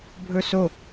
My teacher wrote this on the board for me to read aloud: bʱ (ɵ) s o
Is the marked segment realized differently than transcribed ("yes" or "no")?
no